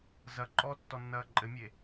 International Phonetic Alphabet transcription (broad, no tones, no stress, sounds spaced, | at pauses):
z ɐ ǃʼ ɔ tː ɔ nː ɐː ǃʼ ɘ mʲ e